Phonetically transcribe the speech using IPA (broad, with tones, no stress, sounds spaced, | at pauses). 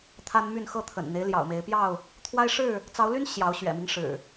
t̪ʰ a˦ n m y˥˨ n x ɤ˥˨ t̪ʰ ə̰˨˩ n n̪ e˦ ɪ̯ l j ɑ̰˨˩ ʊ̯ m e˨˦ ɪ̯ p j ɑ˥˨ ʊ̯ | t̪ʰ w a˦ ɪ̯ ʂ ɻ̩˥˨ | t͡s ɑ˨˦ ʊ̯ l y˦ n ɕ j ɑ˨˦ ʊ̯ ɕ ɥ ɛ̰˨˩ m i˦ ŋ ʂ ɻ̩˨˩